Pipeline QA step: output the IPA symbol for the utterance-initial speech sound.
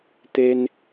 t̪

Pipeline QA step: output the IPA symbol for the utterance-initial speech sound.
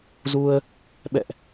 z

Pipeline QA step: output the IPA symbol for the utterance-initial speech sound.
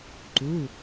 ǃ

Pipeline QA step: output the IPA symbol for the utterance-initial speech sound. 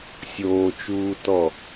sʲ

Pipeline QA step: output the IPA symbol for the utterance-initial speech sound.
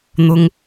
n̪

